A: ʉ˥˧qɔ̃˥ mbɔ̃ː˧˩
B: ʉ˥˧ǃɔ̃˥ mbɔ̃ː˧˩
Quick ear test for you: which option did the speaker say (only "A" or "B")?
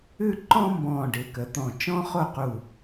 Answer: B